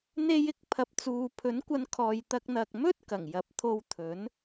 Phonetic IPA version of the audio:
n̪ e˧ j ɪ˨ k̚ pʰ ɐ˨ p̚ t͡s uː˨ pʰ ɵ˨˥ n kʷ ɐ˨˧ n kʰ ɔː˨ j t̪ ɐ˧ k̚ n̪ ɐ˨ k̚ m ɵ˥ t̚ k ɐ˨˩ ŋ j ɐ˨˥ p̚ t̪ʰ o˧ w t̪ʰ ɵ˨˥ n

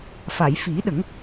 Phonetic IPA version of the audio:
f a˨˩˨ j f i˨˩˦ ɗ ə˨˩˦ ŋ

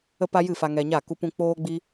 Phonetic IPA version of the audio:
ə˦ p a˦ j ɨ˦˨ f a˧ ŋ ɛ˧ ɲ a˦˨ k u˦ p ũ˦ k͡p oː˦ ɡ͡b i˦

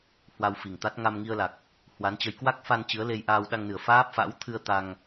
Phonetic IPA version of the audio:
h w a˧ w f i˨˩ ŋ t̪ a˦˥ t̚ ŋ a˧ m ŋ i˧ ə̯ l a˨˩ k̚ | h w a˨˦ n t͡ɕ ə˧ j k w a˦˥ k̚ f a˧ n t͡ɕ ɨ˨˦ ə̯ l e˧ j ʔ aː˧ w ɗ a˧ ŋ n ɨ˨˩ ə̯ f aː˦˥ p̚ f a̰˧˥ w t̪ʰ ɨ˧ ə̯ t̪ a˧ ŋ

